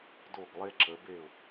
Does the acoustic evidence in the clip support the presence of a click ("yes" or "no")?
yes